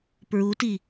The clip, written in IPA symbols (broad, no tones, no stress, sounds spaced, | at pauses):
p ɹ u t i